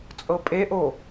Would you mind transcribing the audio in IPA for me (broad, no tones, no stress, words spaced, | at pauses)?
t͡sʼɤpʼeʔo